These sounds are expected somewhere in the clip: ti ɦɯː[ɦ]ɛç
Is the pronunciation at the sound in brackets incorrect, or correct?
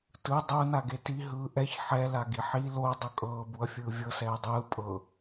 incorrect